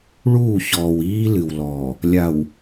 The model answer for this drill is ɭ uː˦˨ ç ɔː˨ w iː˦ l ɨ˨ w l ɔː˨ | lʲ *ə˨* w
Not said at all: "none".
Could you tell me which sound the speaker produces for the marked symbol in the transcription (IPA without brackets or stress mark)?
a˨